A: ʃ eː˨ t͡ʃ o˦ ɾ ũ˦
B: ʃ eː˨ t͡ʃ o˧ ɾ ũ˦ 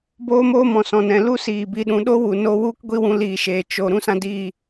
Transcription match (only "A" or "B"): B